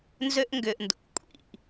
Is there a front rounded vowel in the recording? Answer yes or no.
yes